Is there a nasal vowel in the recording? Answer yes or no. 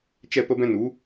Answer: yes